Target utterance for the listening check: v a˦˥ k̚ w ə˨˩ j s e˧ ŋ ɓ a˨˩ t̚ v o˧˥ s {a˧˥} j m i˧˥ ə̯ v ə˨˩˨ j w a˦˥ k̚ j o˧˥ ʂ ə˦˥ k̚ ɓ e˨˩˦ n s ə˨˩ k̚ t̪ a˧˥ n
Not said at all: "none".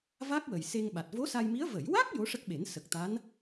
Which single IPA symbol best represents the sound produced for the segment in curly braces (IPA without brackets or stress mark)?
a˧